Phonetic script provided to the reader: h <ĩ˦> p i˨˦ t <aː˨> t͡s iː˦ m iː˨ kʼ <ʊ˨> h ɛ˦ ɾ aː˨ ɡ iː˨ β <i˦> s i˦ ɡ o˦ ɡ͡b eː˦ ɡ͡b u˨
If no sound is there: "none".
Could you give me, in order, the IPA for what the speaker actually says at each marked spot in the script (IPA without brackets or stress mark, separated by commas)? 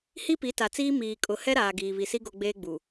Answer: i˦, a˨, ʊ˨, i˨